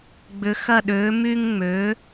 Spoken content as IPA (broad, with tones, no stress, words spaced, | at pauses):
ɡ͡bʏ˩˥xɐ˦˨ɗø˩˥ my˦ŋŋ͡mø˩˥